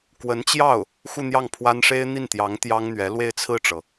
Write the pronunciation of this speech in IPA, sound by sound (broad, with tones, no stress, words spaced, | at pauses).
kwə˧˥nt͡ɕjɑ˥˩ʊ̯ | xu˥˧n̪jɑ˥˩ŋpʰwa˥n ʂe˥ɪ̯n̪i˥˩nt̪jɑ˧˥ŋ t̪jɑ˥ŋn̪ɥɛ˧˥ lwe˥˧ɪ̯t͡sʰɹ̩˥˩ʈ͡ʂɤ˩